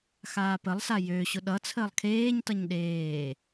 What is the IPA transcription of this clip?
x aː p ə lˠ s a j ø ɕ ʊ ɗ ʌ t͡sʰ əː lˠ kʰ eː ɲ t ʌ ɲ ɗ eː

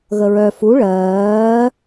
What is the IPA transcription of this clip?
ɣ ə ɹ œ f u ɭ ɜː

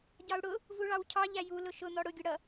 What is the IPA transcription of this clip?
ɟ ɑ u̯ ɽ ʊ | v u ɭ ɑ w cʰ ɑ ʎ æ j u l ʊ ʃ ʊ n̪ ɔ ɽ ʊ ɡʲ ʊ ɽ ʌ

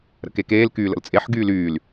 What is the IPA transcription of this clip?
ɾ ə̰ k e k eː l k yː l ə̰ l t͡sʼ e ħ ɡ yː l yː l

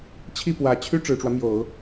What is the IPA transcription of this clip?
t͡ɕʰ i˥˩ p w ä˨˩ t͡ɕʰ y˥ ʈ͡ʂ ɻ̩˨˩ ʈ͡ʂ w ä˦ m j o˨˩˦ ʊ̯

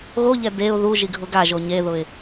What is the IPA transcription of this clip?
ɣ o ʎ ɛ d e ʊ̯ ð u ʒ i ɡʱ ʊ ɡ a ʒ o ɲ e ð ʊ ɪ̯

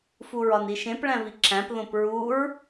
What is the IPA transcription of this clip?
f u ɹ ɒ n i ʃ ẽ p ɭ æ̃ v i ǁ æ̃ p ð õ p ɹ u ɹ

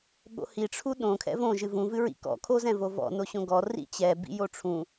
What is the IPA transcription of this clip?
ɠ o̰ h i ʈ͡ʂʰ u ɗ õ kʰ ɛ̰ v õ ʒ ɨ v ũ v ɨ ɹ ḭ k ɔ̰ kʰ o z ɛ̃ v o v ɔ̰ n o ɕ õ ɡ ɔ r ḭ t͡ɕ ɛ b ḭ j o ʈ͡ʂʰ ũ

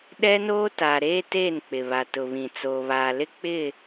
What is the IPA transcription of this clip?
ɗ ɛ˦ n oː˦ t a˨ ɾ eː˦ t e˦˨ n k͡p ɪ˨ β a˨ t ʊ˨ β ĩ˨ t͡s oː˨ β aː˨ l ɪ˦ k͡p ɪ˦˨

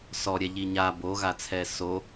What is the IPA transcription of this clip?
s ɔ ɾʲ ɛ ʎ i ɲ a b o ɣ a t͡sʰ ɛ s o

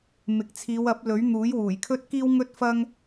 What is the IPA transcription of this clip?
m ɪ˨ k̚ t͡sʰ iː˨˧ w ɐ˨˥ p̚ l ɵ˨˥ ɥ n̪ uː˨˥ j w uː˨˩ j kʰ ɵ˥ t̚ k iː˥ w ŋ ɵ˥ t̚ f ɐ˥ ŋ

